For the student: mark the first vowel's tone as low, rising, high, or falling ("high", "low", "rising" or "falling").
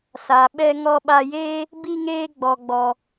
low